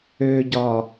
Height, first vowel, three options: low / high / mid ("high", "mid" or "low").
mid